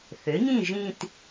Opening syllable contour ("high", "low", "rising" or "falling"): rising